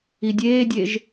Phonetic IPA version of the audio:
i dʲ eː dʲ e ʒ

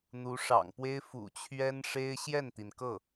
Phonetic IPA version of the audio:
n̪ u˧˥ ʂ ɑ̰˨˩ ŋ p w e˥ ɪ̯ f ṵ˨˩ t͡ɕʰ ɥ ɛ˥ n ʂ e˥ ɪ̯ ɕ j ɛ˥˩ n t̪ i˩ n k ɤ˥˩

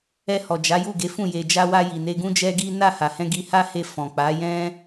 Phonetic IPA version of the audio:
ɛ˧ h ɔ˨ d͡ʒ a˨˦ j u˦˨ ɡ e˨˦ f ũ˦˨ j e˨ d͡ʒ a˧ w a˧ j i˨ n e˧ ɡ ũ˦ d͡ʒ ɛ˦ ɡ i˦ n a˦˨ h a˨ h ɛ̃˧ ɡ i˧ h a˦ h e˧ f ɔ̃˨ k͡p a˨˦ j ɛ̃˦

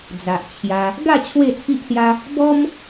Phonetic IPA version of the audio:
d͡z a˨ ʔ t͡ɕʰ j a˧ | ɡ a˥˧ t͡ɕʰ w e˥˧ t͡sʰ i˦ ʔ s j a˦ | b ɔ˦ m

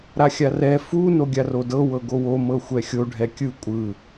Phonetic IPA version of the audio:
ɾ a xʲ a r ɛ f u n o ɡʲ a r o d ɤ w ɤ ɡ o w o m ɤ xʷ ɛ xʲ o ɖʱ ɛ kʲ ɯ kʷʼ ɯ

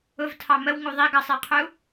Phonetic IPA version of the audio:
ʊ v tʰ ɑ m ə w ŋ u ðˤ i ɡ ʌ sˤ i qʰ u

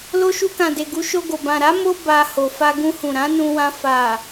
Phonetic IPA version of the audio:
l o˧ ʃ u˧ k ã˨ d e˨ ɡ u˨˦ ʃ o˧ ɡ o˨ b ã˨ ɾ a˨˦ m o˦ b a˧ h o˨ f a˧ ɡ ũ˧ h ũ˨ ɾ ã˨˦ n ũ˧ w ã˧ f a˨

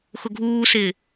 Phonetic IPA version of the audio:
x ʊ ɡʱ uː s ɪː

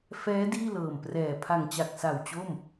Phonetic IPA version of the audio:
f ɛː˦˥ d iː˥˩ l ɤː˨˩ m p r ɛː˨˩ pʰ a˨˩ ŋ t͡ɕ a˨˩ k̚ s a˨˩ w t͡ɕ o˥˩ m

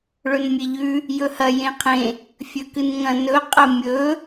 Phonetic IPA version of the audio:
ɭ ɵ n mʲ e ʎ ʉ | j ɵ h ɐ j ẽ qʰ ẽ | fʲ ɵ k ɨ n ŋ ɐ̃ n ɵ qʼ ɐ mʲ ɵ

